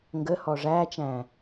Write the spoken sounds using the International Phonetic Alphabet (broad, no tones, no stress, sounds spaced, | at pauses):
ŋ ɡ ə h ɔ ʐ æ t͡ʃ æ̃